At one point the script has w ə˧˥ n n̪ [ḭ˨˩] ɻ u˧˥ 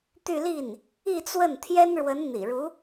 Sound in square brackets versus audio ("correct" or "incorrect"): correct